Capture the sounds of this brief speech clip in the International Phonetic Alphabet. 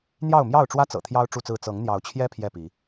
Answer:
n̪jɑ˥˨ʊ̯mjɑ˥˨ʊ̯ʈ͡ʂwä˦t͡sɤ̰˨˩ t̪ʰjɑ˦ʊ̯ ʈ͡ʂu˥˨t͡sɹ̩˥˨ t͡sɤ˨˦ŋn̪jɑ˨˦ʊ̯t͡ɕʰjɛ˦ pʰjɛ˥˨pi˨˦

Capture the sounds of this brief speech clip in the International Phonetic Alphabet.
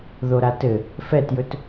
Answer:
ðoɾatɘ | fɛtjɵt

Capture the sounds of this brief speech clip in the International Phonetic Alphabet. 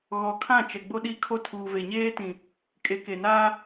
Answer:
ɣɔ˨kʰã˦˨ t͡ʃɛ˨ɡ͡bo˦ɗi˦kʰo˦ tʰuː˨ve˨ɲeː˦tĩ˨ | kʼe˨˦ke˨naː˦

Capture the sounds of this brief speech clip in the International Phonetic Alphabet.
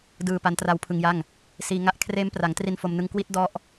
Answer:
dɯː˨˩ pa˦˥ntra˦˥wpʰɯ˧ŋja˥˩ŋ | siː˧ŋa˥˩ʔ kʰreː˦˥mpra˩˦ŋtri˧n fo˧mnɯ˧ŋ kwi˦˥t̚dɔ˦˥ʔ

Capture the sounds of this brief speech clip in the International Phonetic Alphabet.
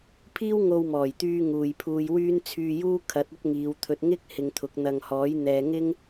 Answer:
pʰiː˥wŋo˧wmɔː˨˩jt̪yː˧ ŋuː˨jpʰuː˧jwyː˥n t͡sʰyː˧juː˥ kʰɐ˨˥t̚ ɐ˥t̚ŋiː˨˧wt̪ʰɵ˧t̚ ŋɪ˥k̚ hɪ˧ŋt̪ʰʊ˨˥k̚ n̪ɐ˨ŋhɔː˨˥j n̪ɛː˨ŋɪ˥ŋ

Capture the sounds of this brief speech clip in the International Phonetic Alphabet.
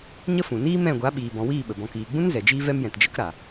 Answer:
ɲə˦fũ˨ niː˦mɛ̃˦˨ɡʷa˨˦ɓiː˨ bɔ̃˨wiː˦˨ ɓə˨bɔ̃˧ kiː˨ɡ͡bũ˦n zɛ˨d͡ʒiː˦vɛ˦mjɛ̃˨t d͡ʒə˦k ɾa˨

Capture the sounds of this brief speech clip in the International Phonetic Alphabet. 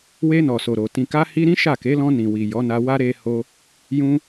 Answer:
we˧nɔ˨ so˨ɾo˨ tĩ˨ka˧hi˧ɾĩ˦ ʃa˦˨ke˨˦ lɔ̃˧nĩ˨wi˨ jɔ˨˦na˧wa˦ ɾe˧ ho˧ | jũ˧

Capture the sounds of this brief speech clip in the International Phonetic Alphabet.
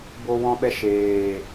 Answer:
bo˧wɔ̃˧ɓɛ˧ ʃeː˨

